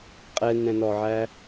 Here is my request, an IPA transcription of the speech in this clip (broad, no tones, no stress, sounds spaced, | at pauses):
qʼ ɛ n ɛ̃ n ɔ ʕ æ